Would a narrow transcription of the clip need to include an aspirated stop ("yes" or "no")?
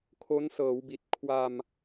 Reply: yes